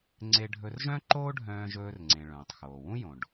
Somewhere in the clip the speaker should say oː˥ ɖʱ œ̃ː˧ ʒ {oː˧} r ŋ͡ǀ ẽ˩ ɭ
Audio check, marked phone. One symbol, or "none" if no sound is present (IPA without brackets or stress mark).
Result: ɵː˧